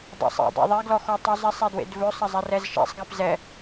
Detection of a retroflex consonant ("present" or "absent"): absent